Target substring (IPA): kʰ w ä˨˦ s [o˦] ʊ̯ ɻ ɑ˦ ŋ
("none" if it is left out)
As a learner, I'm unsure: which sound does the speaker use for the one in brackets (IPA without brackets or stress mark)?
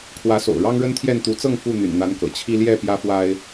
o̰˨˩